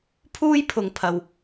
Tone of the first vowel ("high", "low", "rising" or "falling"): high